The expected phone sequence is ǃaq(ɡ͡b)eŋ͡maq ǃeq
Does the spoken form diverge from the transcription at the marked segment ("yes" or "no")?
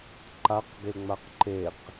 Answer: yes